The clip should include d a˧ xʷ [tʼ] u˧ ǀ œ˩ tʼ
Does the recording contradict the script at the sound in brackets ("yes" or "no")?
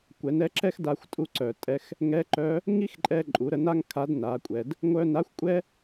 no